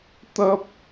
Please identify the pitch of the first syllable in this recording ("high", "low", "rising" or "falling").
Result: high